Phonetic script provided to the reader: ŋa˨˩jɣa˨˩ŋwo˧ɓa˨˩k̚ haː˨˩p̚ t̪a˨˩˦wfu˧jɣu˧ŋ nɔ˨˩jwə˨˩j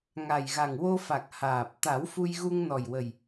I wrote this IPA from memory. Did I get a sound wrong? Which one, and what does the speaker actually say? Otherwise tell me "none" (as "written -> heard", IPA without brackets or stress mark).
ɓ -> f